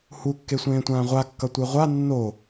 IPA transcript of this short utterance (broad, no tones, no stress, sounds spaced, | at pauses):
h u kː e sʷ ẽː tʷ ãː ʁʷ a kː ʌ tʷ e ʁʷ a nː o